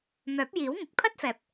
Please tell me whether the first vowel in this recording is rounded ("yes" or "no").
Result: yes